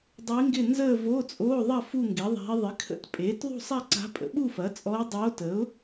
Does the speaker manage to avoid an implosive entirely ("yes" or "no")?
no